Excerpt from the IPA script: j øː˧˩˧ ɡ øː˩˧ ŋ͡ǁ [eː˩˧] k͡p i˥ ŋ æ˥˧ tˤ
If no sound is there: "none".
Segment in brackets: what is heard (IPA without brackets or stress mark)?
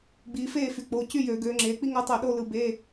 eː˩˧